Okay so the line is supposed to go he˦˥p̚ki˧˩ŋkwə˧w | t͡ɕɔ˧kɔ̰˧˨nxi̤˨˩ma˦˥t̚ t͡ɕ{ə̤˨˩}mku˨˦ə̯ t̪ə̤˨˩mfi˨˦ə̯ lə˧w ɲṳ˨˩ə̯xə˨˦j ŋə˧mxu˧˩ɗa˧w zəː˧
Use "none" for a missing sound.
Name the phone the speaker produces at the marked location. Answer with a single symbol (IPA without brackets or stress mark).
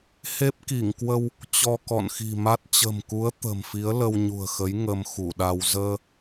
ə̤˨˩